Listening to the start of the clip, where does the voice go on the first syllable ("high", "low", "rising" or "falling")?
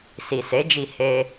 low